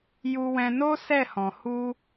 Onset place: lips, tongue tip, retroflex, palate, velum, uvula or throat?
palate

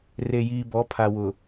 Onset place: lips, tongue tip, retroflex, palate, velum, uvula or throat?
tongue tip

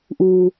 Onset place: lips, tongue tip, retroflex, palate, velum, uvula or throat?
throat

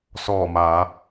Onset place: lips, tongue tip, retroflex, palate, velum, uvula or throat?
tongue tip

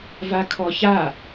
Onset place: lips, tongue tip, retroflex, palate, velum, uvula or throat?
lips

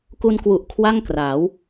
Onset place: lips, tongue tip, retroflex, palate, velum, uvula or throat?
velum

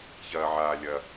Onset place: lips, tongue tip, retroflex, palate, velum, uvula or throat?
palate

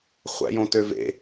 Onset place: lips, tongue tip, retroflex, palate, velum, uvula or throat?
uvula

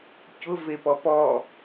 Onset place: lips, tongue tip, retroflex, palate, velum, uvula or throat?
palate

